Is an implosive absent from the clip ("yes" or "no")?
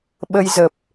no